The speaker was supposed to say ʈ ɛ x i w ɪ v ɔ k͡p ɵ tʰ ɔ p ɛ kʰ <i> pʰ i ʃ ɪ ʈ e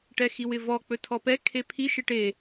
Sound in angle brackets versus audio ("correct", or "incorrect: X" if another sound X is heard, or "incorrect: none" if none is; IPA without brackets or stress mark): incorrect: e